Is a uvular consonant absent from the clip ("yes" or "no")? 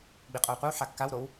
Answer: no